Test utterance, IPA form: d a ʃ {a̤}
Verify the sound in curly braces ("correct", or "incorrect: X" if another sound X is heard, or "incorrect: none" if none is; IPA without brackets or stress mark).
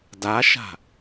correct